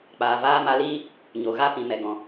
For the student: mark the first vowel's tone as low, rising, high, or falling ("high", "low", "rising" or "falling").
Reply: low